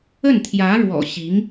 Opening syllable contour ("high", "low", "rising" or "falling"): falling